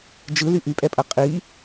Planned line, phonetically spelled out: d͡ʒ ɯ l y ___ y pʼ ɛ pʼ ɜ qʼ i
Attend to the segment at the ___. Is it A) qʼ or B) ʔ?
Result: B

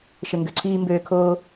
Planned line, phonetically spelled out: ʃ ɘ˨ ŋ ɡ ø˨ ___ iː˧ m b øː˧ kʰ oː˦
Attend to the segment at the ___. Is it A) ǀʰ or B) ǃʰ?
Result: A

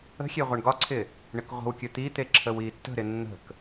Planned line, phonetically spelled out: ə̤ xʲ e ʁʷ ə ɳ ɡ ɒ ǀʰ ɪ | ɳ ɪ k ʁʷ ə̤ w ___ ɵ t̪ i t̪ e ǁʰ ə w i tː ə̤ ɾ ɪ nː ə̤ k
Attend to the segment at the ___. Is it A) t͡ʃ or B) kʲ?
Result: B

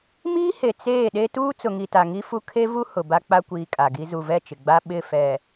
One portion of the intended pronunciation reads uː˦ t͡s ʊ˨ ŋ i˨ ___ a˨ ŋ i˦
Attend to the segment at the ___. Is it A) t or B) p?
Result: A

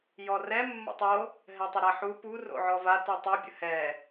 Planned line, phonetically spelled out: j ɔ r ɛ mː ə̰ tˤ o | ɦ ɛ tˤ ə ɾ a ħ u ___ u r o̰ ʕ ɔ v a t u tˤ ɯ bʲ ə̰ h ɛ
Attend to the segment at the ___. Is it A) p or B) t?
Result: A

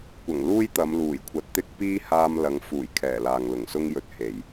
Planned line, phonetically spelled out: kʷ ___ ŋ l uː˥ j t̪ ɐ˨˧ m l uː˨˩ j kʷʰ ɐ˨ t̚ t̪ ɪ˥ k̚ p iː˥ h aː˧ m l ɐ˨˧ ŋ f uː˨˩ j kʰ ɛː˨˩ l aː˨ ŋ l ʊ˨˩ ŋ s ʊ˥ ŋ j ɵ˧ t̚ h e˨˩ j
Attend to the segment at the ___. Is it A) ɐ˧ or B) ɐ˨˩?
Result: B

